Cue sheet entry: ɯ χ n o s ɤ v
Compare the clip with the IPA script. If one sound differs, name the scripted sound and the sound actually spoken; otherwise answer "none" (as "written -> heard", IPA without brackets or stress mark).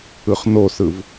ɤ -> ɯ